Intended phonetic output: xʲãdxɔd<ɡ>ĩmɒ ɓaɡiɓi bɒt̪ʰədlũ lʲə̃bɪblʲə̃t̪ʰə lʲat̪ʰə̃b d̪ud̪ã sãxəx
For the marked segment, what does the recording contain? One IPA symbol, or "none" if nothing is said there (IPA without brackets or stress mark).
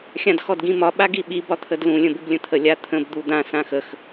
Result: ɡ